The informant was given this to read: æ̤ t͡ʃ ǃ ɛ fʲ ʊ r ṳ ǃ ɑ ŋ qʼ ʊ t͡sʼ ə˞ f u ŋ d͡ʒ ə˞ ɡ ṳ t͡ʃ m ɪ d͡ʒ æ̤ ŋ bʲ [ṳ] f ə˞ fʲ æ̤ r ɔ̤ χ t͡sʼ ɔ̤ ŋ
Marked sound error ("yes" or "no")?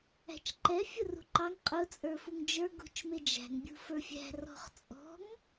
no